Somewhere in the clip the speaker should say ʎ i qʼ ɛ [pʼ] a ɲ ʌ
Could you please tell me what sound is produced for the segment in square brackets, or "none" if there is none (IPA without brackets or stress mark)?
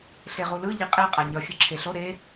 qʼ